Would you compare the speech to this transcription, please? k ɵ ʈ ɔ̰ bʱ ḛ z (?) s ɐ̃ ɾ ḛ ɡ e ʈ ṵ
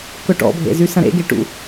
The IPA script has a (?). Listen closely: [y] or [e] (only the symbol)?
y